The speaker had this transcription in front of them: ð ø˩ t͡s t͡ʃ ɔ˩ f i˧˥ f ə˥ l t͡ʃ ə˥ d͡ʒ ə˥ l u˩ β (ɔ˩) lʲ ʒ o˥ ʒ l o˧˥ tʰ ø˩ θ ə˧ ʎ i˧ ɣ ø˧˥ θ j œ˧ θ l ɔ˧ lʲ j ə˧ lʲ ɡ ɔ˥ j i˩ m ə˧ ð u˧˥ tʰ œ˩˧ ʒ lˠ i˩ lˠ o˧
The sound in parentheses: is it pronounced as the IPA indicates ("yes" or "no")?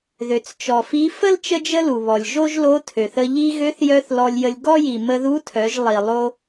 yes